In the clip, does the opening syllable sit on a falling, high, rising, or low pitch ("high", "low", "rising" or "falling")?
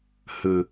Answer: low